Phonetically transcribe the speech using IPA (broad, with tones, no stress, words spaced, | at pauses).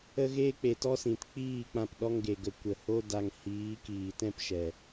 ə˦ɣeː˦ k͡pe˨tɔ˦sĩ˨t k͡piː˦˨ k͡pã˦˨pɗɔ˦ŋɡe˨ɡə˨ kʷə˨ho˦da˧ŋ hiː˨˦kiː˨ tɛ̃˦pʃɛ˨